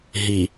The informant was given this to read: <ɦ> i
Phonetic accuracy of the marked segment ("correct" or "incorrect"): correct